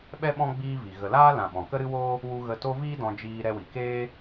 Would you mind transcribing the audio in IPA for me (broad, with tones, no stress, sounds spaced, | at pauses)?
ɓ ɛ˦ ɓ ɔ̃˦ ɡ͡b iː˦ v i˨ ɣ ə˨ l aː˦ l ã˨ ɓ ɔ̃˨ k ə˦ ɾ ɨ˦ w oː˦ | w u˧ ɣ ə˧ t o˦ v iː˦ d ɔ̃˧ d͡ʒ iː˧ ɾ ɛ˧ w i˨ k eː˦